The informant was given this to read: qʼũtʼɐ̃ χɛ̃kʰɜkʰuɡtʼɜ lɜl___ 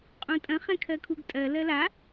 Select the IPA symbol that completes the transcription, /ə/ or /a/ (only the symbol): a